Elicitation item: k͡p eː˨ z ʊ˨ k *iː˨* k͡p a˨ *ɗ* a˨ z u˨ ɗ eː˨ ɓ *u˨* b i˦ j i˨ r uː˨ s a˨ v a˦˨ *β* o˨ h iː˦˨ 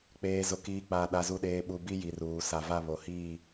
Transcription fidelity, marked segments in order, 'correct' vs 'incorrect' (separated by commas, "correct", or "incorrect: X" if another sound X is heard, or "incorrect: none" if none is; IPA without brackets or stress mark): correct, correct, correct, correct